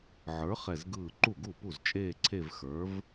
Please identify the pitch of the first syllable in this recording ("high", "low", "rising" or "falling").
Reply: rising